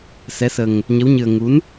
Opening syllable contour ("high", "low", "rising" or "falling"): rising